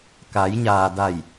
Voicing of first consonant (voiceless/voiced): voiceless